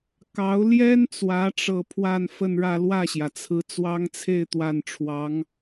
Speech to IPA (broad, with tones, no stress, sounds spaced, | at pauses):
k ɑ˧˥ ʊ̯ l j ɛ˥ n t͡s w ä˧˥ ʈ͡ʂ ɤ˥˧ pʰ w a˥˧ n f ə˥˧ n ɻ ä˥˧ l w ä˥˩ ɕ j ä˩ t͡sʰ ɹ̩˧˥ t͡s w ɑ˥ ŋ t͡sʰ e˥˧ ɪ̯ t̪ w a˥˩ n ʈ͡ʂʰ w ɑ˧˥ ŋ